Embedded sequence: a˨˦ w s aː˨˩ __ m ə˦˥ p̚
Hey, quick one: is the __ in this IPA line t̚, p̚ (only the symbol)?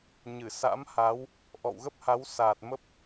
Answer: t̚